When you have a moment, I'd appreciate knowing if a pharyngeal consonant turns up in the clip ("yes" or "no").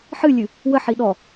yes